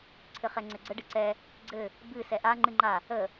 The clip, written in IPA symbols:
ǀʰ ɘ χ ɛ ŋ͡ǀ ɘ ɡ͡ǀ ə ɖ ɨ ǀ ɛ | ɡ͡ǀ ɘ | b ɨ s ɛ ʔ a ŋ͡ǃ ɨ ŋ͡ǃ a | ə

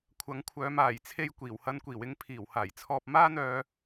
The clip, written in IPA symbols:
kʷʰ ɐ˨˥ ŋ kʷʰ œː˨˧ m aː˨˩ j t͡sʰ e˧ j kʷ iː˨˩ w h ɐ˧ n kʷ iː˨˩ w ɪ˧ ŋ pʰ iː˨˩ w h aː˨˩ j t͡sʰ ɔː˧ p̚ m aː˥ n̪ œː˧

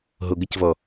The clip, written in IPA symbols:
ɦ o ɡ ə c v ɔ

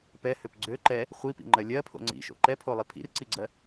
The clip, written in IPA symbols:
p ɛ h ø p ɡ͡ǀ ø ǃ ɛ | χʷ i p ḭ ŋ͡ǃ ɜ lʲ ɜ pʰ o̰ ŋ͡ǀ ḭ ʃ o̰ ǃ ɛ pʰ o lˠ i pʰ ḭ r ǀ i ɡ͡ǀ ɜ

